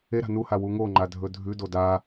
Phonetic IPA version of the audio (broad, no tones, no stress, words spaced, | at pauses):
eɾa̤ nuha wuŋoŋ͡ǃa dʱɵdʱʉdo da